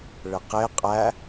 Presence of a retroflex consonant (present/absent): present